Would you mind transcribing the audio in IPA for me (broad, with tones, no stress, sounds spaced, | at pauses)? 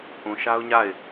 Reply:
ʔ ũ˨ ʃ a˦ ʊ̯ ɲ a˦˨ ɪ̯